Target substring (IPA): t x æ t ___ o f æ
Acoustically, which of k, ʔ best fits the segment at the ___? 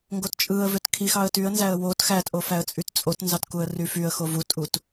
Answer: ʔ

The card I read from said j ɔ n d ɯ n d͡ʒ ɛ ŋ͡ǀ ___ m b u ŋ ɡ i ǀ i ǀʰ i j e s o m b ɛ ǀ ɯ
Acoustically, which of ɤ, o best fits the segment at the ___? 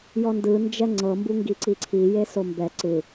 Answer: ɤ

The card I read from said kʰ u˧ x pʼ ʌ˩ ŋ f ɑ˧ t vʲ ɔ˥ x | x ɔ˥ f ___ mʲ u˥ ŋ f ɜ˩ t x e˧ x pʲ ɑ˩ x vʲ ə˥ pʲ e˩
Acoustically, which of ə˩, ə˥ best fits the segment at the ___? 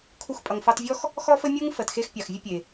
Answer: ə˥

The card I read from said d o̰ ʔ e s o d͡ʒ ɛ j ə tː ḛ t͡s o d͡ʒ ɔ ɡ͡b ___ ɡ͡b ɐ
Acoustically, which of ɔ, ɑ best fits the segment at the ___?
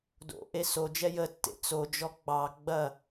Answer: ɑ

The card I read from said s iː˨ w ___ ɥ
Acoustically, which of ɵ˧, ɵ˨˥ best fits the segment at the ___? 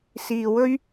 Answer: ɵ˧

